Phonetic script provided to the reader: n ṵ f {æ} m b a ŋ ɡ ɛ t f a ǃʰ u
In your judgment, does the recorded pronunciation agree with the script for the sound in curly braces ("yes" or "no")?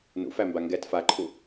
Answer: yes